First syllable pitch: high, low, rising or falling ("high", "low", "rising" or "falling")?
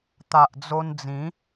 low